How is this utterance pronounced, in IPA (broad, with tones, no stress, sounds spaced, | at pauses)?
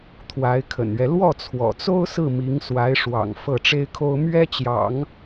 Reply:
t̪ʰ w a˧˥ ɪ̯ kʰ ə̰˨˩ n ɥ ɛ˦ l w ɔ˥˩ t͡sʰ w ɔ̰˨˩ t͡s o˥ ʊ̯ s ɹ̩˥˩ m i˧˥ ŋ s w a˧˥ ɪ̯ ʂ w ɑ̰˨˩ ŋ f ɤ˥˩ ʈ͡ʂ e˥ ɪ̯ kʰ o˥ ʊ̯ m ɥ ɛ˥ t͡ɕ j ɑ̰˨˩˦ ŋ